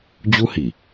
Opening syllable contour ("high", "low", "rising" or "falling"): high